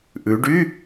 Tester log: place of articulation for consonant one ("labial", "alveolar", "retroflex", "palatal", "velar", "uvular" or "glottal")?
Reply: glottal